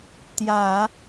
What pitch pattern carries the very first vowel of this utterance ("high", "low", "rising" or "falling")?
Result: low